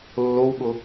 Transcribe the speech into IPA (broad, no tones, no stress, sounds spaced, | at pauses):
lː o w ɠ ʊ